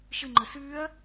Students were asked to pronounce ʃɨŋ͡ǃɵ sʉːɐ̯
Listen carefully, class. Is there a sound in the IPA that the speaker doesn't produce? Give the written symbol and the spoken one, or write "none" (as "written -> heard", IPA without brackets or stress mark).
none